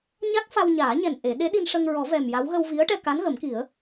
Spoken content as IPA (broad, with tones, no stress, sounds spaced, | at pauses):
ɲ a˦˥ k̚ f a˧ w ɲ aː˨˩˦ ɲ ɛ˨˩ n ʔ e˨˩˦ ɗ e˧˥ ɗ i˧ n ʂ ə˧ ŋ ɹ ɔ˨˩˦ v ɛ˨˩ m j a˧˥ w ɣ ə˧ w v i˧˥ ə̯ ʈ ɛ˧ k a˧˥ n ɣ ə˨˩˦ m k i˨˩˦ ə̯